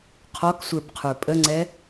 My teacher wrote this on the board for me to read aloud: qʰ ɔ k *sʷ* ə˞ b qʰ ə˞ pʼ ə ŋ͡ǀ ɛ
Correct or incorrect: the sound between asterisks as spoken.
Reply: correct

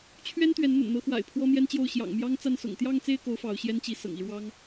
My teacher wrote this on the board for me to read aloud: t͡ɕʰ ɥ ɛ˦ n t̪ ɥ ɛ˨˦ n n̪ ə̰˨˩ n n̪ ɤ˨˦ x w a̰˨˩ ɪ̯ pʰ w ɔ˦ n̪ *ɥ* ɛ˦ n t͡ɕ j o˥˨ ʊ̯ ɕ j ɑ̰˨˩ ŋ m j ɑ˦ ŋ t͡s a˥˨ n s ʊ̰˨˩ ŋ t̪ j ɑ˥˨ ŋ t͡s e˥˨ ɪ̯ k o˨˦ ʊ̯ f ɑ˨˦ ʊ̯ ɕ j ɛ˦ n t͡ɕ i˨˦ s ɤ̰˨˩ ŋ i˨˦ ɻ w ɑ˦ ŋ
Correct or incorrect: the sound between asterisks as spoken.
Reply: incorrect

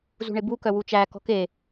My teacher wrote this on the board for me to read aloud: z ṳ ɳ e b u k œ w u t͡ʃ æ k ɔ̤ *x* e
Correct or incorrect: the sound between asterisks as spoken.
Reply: incorrect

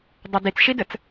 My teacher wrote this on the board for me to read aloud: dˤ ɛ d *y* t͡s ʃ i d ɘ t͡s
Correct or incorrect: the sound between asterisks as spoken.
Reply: incorrect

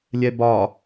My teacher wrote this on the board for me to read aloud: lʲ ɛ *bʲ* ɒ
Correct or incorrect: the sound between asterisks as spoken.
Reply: incorrect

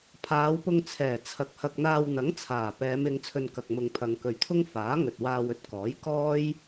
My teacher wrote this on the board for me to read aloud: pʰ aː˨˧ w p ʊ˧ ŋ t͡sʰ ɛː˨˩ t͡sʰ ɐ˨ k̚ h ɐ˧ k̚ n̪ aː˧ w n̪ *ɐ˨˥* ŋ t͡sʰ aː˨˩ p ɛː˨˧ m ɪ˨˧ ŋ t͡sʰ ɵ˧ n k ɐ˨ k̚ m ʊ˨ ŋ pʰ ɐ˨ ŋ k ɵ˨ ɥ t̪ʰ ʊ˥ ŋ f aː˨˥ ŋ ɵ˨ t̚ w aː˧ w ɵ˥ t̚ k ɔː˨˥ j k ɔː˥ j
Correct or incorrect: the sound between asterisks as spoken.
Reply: correct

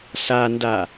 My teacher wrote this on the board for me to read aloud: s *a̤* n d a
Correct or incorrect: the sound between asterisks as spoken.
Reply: incorrect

